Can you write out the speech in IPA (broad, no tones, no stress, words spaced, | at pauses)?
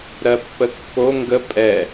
ɾɜpːəkːo ŋɡə pʼɛ